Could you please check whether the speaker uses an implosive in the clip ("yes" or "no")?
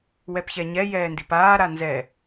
no